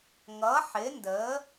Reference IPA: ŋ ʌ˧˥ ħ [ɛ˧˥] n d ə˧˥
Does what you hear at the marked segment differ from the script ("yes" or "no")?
yes